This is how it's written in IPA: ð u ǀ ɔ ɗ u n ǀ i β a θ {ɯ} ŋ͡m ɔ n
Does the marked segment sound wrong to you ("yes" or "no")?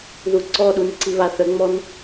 yes